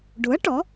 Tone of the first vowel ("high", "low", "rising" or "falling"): rising